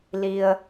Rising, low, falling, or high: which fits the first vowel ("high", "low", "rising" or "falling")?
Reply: low